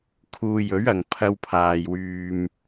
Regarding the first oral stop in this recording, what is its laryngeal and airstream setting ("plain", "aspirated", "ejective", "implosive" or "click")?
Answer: aspirated